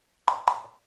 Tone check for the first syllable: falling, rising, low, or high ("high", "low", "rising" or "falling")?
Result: low